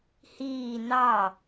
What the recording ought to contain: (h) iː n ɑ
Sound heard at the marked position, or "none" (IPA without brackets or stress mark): h